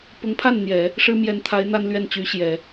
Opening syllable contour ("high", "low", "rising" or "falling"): rising